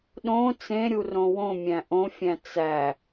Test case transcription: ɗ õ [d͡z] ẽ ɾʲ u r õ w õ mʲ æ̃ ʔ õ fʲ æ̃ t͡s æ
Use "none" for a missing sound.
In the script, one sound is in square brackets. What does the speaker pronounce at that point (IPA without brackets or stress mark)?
t͡s